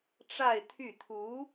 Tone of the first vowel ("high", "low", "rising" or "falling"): falling